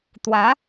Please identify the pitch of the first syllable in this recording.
rising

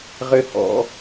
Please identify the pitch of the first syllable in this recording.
high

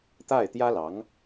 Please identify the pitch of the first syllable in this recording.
falling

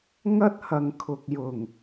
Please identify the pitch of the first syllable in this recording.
high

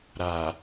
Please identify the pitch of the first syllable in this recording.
low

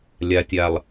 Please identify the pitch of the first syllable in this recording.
low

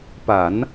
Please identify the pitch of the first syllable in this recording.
low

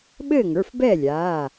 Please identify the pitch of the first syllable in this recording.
falling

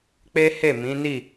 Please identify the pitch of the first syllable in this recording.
high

